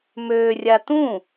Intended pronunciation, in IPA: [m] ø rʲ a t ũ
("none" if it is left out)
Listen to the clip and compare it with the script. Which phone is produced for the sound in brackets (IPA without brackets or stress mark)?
m